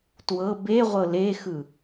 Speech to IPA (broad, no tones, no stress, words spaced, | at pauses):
twɤ beʁʷɤ lexɯ